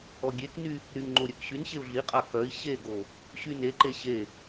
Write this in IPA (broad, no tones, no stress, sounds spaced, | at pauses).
ɔ ɡʲ e k n y | ɾ y ŋ ŋ͡ǃ o ɾʲ œ k ɕ y n ɕ e u̯ ɮ i qʼ a k œ i̯ ɕ e ɡ o | ɕ y n e ǃ e ɕ e